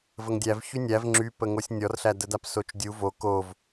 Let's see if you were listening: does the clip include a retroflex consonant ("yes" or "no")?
no